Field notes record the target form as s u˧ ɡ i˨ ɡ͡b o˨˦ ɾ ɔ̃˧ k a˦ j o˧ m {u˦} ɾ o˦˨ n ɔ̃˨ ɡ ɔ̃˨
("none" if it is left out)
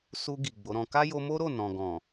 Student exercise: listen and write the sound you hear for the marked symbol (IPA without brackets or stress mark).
o˦